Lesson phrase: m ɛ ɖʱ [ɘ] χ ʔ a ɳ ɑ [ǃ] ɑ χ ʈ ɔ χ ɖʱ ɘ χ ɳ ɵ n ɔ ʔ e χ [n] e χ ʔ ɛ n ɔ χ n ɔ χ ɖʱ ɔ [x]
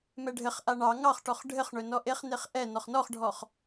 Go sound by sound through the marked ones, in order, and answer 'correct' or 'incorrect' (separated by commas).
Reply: correct, incorrect, correct, incorrect